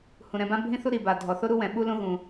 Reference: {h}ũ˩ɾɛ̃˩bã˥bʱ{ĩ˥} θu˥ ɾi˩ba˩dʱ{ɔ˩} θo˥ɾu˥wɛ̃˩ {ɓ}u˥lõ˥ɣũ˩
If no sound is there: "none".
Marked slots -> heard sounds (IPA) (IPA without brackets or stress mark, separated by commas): h, ĩ˥, ɔ˩, ɓ